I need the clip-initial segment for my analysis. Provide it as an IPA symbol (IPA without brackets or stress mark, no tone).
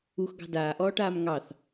u